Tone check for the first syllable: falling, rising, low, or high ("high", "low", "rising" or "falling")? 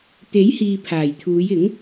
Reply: rising